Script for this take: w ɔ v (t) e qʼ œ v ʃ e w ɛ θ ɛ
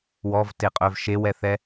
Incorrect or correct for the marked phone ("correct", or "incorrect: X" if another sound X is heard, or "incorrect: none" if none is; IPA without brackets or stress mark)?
correct